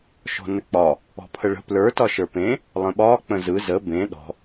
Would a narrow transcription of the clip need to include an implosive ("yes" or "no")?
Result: yes